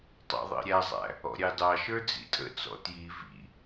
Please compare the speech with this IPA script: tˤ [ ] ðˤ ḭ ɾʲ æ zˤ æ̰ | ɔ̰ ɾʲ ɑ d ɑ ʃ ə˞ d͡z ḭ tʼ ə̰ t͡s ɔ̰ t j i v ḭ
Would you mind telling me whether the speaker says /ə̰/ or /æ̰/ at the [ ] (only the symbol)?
æ̰